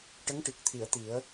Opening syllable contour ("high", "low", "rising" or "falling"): rising